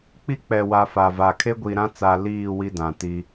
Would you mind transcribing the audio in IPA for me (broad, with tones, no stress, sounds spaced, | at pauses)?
k͡p i˦ k͡p ɛ˨ w a˨ f a˨ v a˨ kʰ e˦ ɡʷ i˨ ɾ ã˦ t͡s a˨ l iː˦˨ w i˦ d ã˨ t i˦